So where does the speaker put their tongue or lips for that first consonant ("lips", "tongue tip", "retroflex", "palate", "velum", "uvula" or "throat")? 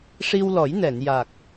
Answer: retroflex